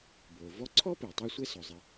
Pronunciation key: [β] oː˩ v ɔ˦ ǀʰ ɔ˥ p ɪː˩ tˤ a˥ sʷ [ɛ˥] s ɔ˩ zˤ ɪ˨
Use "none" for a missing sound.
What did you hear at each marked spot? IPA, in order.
b, ɛ˥

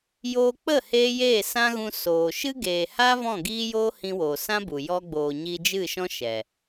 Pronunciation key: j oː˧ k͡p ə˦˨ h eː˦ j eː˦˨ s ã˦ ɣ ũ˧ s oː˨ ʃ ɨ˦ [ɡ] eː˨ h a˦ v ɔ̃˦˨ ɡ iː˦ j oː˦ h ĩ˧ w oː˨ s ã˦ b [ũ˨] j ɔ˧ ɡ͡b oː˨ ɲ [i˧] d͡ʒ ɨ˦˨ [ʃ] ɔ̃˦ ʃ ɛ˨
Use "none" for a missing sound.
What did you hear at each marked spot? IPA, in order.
ɡ, u˨, i˧, ʃ

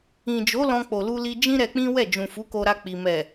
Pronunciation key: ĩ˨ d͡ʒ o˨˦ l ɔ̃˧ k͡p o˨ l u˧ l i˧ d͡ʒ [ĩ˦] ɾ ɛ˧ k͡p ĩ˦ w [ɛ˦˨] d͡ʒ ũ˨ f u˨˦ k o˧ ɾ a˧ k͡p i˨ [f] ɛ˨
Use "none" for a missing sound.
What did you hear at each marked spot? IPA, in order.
ĩ˦, ɛ˦˨, m

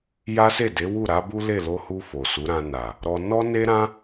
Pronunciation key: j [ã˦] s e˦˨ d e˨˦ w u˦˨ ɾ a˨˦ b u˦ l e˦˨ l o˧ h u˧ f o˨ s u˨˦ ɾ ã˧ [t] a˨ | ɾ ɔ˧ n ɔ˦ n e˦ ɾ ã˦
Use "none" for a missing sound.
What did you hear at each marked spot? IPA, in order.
a˦, n

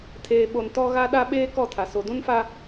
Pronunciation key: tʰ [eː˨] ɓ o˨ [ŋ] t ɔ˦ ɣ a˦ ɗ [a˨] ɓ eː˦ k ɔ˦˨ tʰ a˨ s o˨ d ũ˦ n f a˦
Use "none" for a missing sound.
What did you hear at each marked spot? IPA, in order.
eː˨, n, a˦

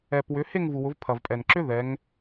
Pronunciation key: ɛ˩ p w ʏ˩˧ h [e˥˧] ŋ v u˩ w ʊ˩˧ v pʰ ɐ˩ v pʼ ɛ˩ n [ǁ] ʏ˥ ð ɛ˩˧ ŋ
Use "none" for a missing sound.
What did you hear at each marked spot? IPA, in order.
e˥˧, ǁ

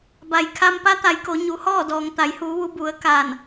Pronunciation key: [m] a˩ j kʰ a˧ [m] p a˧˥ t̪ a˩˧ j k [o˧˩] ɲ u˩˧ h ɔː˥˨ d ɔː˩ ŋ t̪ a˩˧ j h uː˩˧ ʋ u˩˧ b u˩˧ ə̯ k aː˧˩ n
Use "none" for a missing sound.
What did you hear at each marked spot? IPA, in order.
b, m, o˩˧

